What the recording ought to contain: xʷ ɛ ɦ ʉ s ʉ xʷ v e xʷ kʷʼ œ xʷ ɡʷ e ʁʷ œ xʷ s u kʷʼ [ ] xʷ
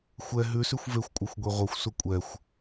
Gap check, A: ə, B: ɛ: B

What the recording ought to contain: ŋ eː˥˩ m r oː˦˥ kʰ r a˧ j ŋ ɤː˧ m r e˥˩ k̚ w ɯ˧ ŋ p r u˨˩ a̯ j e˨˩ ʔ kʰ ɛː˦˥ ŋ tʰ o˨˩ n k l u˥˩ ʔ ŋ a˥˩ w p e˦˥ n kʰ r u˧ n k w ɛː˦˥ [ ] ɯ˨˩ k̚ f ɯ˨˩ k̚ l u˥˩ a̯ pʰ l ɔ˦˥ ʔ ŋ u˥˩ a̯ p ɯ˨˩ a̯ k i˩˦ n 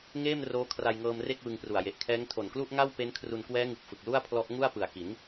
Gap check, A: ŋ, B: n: A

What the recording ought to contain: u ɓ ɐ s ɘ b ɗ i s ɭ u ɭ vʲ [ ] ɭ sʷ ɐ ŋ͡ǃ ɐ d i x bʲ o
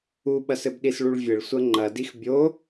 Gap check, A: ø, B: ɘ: B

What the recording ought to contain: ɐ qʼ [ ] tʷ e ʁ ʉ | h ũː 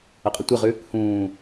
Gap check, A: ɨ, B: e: A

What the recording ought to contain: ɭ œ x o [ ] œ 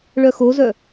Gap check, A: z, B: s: A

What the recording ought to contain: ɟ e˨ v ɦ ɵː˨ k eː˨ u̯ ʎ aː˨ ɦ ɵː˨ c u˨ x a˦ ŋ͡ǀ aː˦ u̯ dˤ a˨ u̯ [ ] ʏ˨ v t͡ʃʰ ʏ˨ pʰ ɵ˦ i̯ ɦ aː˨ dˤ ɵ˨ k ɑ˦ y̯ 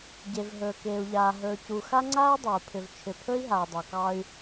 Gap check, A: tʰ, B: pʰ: B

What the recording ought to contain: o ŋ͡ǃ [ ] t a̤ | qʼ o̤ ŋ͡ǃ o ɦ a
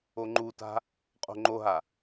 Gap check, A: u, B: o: A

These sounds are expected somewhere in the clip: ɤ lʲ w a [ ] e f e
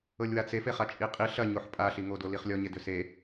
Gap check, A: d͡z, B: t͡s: B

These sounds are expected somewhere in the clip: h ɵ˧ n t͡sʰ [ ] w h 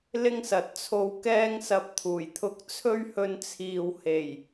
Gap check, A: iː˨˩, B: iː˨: B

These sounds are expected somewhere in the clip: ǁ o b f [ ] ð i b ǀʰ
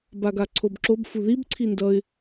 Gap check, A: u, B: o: A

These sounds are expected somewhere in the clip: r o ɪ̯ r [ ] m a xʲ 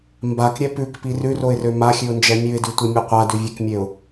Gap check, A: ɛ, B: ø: B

